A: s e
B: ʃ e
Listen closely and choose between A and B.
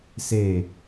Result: A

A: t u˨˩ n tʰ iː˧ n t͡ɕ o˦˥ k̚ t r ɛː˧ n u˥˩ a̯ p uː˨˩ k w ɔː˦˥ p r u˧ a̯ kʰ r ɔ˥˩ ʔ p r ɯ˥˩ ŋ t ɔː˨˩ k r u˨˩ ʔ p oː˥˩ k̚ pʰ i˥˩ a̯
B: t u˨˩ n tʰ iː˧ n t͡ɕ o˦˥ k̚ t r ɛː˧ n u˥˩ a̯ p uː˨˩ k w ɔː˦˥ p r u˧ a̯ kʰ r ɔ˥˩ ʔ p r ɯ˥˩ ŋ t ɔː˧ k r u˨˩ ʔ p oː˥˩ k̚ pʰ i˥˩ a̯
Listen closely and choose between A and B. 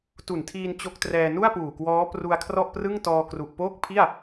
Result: B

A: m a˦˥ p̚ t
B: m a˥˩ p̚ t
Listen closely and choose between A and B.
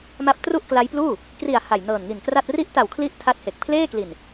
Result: A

